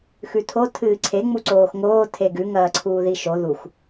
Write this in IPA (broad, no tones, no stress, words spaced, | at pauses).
xʉtʰo tʰɨːǀʰe ŋ͡muǀoːxŋoː tʰeɡʉ ŋɐːǀʰuːðiʃo ðux